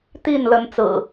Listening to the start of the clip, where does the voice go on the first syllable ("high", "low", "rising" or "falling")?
falling